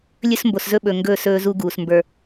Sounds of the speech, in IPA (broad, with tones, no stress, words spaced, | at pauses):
lʲɵ˦smbo˨szɵ˦ ɓɵ˨ŋɡɵː˦˨s ɵː˦zu˦ɡuː˨s mbə˞˨